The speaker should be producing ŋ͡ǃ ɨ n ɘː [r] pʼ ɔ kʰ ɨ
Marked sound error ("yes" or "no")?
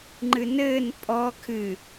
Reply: yes